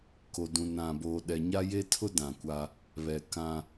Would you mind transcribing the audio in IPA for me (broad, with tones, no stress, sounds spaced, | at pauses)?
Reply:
k o˨ d ũ˨ n ã˨ b oː˨ ɗ ɛ˨ ɲ a˦ j e˦ tʰ ʊ˦ d ã˨ kʷ a˦ | β ɛ˨ k ã˦